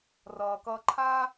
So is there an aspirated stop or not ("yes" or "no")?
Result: yes